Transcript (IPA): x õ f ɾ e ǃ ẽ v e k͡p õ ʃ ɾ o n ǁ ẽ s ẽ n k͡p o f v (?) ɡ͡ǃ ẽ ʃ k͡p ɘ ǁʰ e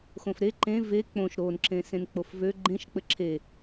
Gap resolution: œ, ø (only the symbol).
ø